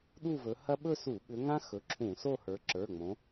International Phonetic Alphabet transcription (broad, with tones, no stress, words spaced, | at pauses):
ɗu˥˧vɵ˨˦hɐ˥ ɓɵ˥˧su˧˩˧ɓʏ˨˦ŋã˥ xɵ˩˧˩ǁʰũ˧˩˧so˥˧ hə˞˨˦ ǁə˞˩˧˩ŋ͡mõ˨˦